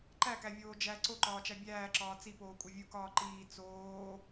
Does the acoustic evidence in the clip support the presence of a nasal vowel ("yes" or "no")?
no